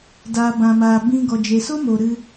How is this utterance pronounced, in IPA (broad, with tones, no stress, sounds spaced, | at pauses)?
d aː˨ b ã˨ m aː˨ b ĩ˧ ɡ ɔ˨ d͡ʒ e˨ s o˦ m o˨ ɾ ɨ˧